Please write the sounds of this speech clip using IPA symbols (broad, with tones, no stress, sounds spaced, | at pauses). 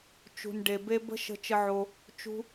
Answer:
t͡ʃ ṳ˨ n ɖ e˨ b e˧ b ə̤˦ ʃ ə̤˧ t͡ʃ ə˧ ʕ o˧ | t͡ʃ ṳ˧